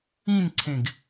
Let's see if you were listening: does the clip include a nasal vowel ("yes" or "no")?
yes